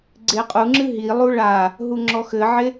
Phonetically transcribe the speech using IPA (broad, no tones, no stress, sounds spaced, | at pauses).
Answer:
ɡ͡ǀ e qʼ u ŋ͡ǁ ɨ ɦ i lˠ u ɭ a | ɦ u ŋ͡ǁ ɔ x ɘ ʕ e